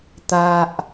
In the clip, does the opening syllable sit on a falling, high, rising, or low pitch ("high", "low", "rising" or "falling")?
low